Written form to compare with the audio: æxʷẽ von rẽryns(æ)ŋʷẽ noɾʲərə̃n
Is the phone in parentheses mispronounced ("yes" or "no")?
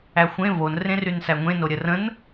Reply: no